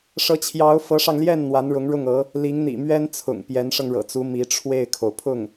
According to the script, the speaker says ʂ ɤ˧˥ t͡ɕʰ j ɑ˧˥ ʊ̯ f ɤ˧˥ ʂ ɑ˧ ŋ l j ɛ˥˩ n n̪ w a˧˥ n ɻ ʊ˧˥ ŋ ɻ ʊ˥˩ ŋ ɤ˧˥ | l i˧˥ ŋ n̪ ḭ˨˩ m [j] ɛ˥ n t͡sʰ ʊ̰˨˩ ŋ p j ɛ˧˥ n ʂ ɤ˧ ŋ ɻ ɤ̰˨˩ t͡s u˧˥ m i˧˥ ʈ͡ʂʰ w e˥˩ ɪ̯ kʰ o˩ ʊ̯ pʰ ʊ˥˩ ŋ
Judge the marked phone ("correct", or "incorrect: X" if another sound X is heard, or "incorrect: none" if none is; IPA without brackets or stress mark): incorrect: ɥ